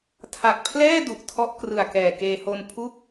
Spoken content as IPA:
tʰ a˨˩ k̚ pʰ l ɛː˥˩ d u˨˩ ʔ tʰ ɔ˦˥ ʔ k r ɯ˨˩ a̯ k ɛː˨˩ k eː˧ h o˧ n pʰ u˥˩ k̚

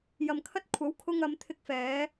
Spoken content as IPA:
j ɐ˨ m kʰ ɐ˧ t̚ kʷʰ ɐ˨˥ w kʰ ʊ˧ ŋ ɐ˨˧ m t̪ʰ ɪ˧ k̚ f ɛː˨˧

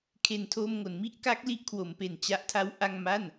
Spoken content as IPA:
kʰ e˨˩ n tʰ oː˧ m ŋ o˩˦ n m i˥˩ ʔ k a˦˥ k̚ l i˥˩ ʔ kʰ w o˩˦ m p e˨˩ n t͡ɕ a˦˥ ʔ tʰ a˦˥ w ʔ a˥˩ ŋ m a˥˩ n

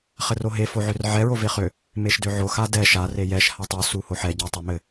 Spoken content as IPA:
χ ɘ r o ɦ e f o ʕ ø r ʕ ɛ ɹ o v e χ ø | m e ʃ d ø ʕ o x a d ɛ ʃ a r e j ɛ ʃ h a tˤ u s u h o ħ ɛ ɟ a tˤ o m ɘ

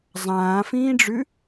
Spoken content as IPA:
zˤ ãː f ĩː ɖ͡ʐ ʉ

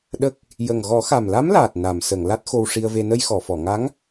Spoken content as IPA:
ɗ ə˦˥ k̚ | j ə˨˩ ŋ ɣ ɔ˨˩˦ x a˨˩ m l a˧˥ m l aː˨˩ t̚ n a˨˩˨ m s ə˨˩˨ ŋ l a˦˥ t̚ x o˧ w ʂ i˧ ə̯ v e˧ n ə˧ j x ɔ˨˩˨ f ɔ˨˩˨ ŋ a˧˥ ŋ

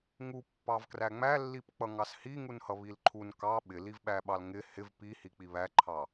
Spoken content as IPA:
ŋ u pː ɑ v k r æ ŋ͡m æ lː i p k͡p ʌ ŋ ɑ s h i ŋ u n h ʌ β i l ǃʰ u n k ɑ ɓ ɪ l i v ɓ æ ɓ ɑ l ŋ ɪ h ɪ v p i h i k͡p i β æ ǃʰ ɑ

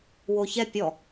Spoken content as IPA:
w o ç ɛ pʲ ɔ

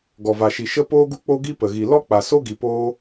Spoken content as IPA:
ɡ ɔ˨ v a˨ ʃ i˨ ʃ ə˦ p oː˦ ɡ u˦ k͡p o˦ ɡ i˦ p ə˨ ɣ i˨ l ɔ˦ k͡p a˨ s o˦ ɡ i˨ p oː˦

